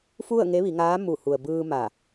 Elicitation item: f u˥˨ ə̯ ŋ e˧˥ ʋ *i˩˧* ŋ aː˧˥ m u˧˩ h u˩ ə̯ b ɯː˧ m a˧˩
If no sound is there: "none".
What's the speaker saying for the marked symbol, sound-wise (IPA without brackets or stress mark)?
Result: i˩˧